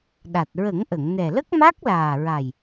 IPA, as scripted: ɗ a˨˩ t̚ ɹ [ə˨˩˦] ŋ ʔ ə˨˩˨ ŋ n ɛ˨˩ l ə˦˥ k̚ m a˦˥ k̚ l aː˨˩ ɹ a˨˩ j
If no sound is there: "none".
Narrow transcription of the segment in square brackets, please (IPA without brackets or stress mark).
ə˨˩˦